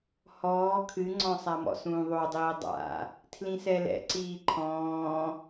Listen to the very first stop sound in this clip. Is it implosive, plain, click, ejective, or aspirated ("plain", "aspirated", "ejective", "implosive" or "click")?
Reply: aspirated